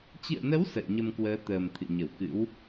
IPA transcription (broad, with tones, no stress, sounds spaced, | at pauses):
t͡ɕ ɨ̰˧˨ ə̯ n ə˨˦ w s ə̰ː˧˨ ɲ ə˧ m k w əː˨˦ t̪ əː˨˩ m t̪ʰ ɨ̰˧˨ ɲ ə˧˩ w k ɨ̰˧˥ w